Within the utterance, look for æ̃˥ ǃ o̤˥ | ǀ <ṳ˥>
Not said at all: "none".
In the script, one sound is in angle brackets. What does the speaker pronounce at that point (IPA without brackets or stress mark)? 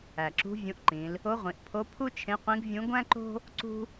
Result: ṳ˥